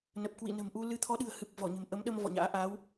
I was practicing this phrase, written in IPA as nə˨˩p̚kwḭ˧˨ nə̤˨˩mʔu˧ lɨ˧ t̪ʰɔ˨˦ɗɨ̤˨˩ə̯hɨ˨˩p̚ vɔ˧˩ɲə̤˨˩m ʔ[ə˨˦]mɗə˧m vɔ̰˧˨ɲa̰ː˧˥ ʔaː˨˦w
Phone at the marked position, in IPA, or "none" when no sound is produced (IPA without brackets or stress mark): ə˨˦